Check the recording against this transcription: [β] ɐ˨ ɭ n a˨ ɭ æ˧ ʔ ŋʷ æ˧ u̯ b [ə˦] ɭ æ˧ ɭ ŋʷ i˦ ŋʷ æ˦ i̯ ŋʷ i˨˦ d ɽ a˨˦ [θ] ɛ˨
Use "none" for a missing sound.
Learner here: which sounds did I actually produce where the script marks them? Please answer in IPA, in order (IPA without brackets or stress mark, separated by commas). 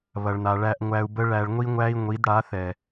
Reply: β, ə˦, θ